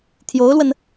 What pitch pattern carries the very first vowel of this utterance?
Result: rising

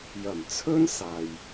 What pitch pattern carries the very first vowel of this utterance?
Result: low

